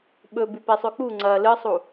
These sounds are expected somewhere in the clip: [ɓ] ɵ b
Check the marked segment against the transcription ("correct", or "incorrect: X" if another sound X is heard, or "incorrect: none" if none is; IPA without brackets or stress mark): correct